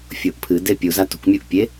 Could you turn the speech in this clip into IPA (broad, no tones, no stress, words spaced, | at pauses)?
fʲoʔpʰɨ depʲu zatṳkʷ mʲoʔpʲe